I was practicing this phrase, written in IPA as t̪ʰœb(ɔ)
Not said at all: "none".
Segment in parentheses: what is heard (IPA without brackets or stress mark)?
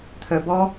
ɔ